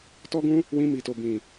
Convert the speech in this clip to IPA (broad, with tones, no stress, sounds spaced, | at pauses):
t ɔ˦ ɡ ũ˦ | w ĩ˧ m i˨ t o˨ b ĩ˨